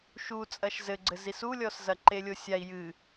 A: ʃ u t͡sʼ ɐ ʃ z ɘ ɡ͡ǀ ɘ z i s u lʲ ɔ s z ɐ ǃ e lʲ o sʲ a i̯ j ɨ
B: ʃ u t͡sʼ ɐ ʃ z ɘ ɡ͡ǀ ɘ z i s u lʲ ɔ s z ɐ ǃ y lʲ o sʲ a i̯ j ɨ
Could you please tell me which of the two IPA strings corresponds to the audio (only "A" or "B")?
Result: A